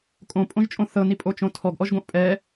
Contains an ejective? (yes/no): yes